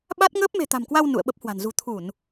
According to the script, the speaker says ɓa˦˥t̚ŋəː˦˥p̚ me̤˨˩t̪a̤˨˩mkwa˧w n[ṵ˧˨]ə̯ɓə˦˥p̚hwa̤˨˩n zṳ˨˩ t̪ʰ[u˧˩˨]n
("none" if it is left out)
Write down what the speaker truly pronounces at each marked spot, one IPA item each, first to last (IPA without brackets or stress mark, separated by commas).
ṵ˧˨, u˧˩˨